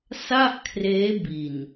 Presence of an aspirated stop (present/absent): present